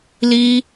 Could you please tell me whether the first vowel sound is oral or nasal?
oral